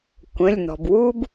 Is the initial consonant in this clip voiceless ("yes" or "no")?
yes